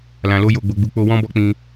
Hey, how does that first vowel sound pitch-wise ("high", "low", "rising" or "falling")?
low